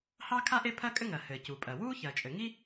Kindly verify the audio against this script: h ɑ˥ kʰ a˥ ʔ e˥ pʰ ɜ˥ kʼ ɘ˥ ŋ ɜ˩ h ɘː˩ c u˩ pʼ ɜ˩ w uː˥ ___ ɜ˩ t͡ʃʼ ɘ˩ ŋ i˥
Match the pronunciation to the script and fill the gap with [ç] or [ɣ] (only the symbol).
ç